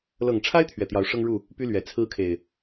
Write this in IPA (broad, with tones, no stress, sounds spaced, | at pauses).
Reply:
l ɤ˨˩ ŋ ʈ͡ʂʰ a˦ ɪ̯ t̪ʰ ɥ ɛ˨˩ t̪ j ɑ˨˦ ʊ̯ ʂ ɤ˦ ŋ ɻ u˥˨ | p y˦ l ɥ ɛ˨˩ t͡sʰ ɹ̩˦ kʰ e˨˩ ɪ̯